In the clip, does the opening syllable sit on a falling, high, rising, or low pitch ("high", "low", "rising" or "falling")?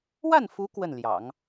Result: falling